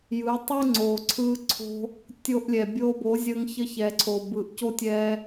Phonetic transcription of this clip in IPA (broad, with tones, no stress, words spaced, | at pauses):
jɯ˨˦ tˤɯ˦ŋ͡ǀoː˨ ǀʰɯː˧ǀʰo̤˧ | tʲo˧ʔlʲɛ˨ bʲoː˧bo˨˦ zʲəː˧ŋçə˧çɛ˨ǀʰo˨ bɯ˨ʔco˦ tʲɛː˧